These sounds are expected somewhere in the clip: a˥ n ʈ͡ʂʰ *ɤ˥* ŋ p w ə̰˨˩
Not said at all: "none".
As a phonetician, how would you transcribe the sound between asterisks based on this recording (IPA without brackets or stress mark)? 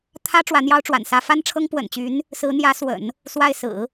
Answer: ɤ˥